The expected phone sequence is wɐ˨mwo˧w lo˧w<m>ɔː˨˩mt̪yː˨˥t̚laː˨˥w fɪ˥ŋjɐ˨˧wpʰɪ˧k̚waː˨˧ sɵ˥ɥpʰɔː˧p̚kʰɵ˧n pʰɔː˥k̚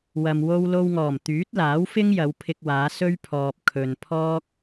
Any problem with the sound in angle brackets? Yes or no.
yes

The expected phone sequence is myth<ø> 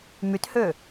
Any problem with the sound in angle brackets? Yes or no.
no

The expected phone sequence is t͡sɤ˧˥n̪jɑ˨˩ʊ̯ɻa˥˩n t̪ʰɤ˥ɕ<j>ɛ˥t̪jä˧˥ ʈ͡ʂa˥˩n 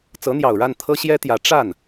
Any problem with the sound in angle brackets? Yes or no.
no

